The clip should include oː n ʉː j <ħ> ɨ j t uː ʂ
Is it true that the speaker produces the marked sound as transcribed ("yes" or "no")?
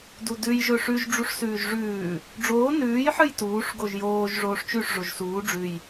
yes